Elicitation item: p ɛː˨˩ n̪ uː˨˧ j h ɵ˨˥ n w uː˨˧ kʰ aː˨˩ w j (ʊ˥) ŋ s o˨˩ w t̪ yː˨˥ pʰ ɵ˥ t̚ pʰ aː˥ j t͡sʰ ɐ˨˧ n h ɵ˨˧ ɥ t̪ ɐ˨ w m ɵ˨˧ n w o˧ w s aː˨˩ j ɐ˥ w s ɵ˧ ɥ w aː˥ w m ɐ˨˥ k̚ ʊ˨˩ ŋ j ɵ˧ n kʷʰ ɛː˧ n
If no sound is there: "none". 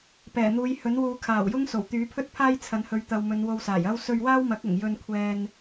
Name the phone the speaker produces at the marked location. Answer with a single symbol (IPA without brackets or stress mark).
ʊ˥